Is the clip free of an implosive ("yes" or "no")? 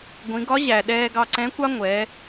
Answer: no